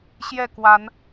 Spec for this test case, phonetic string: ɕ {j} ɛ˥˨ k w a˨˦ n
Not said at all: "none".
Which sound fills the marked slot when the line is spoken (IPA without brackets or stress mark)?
j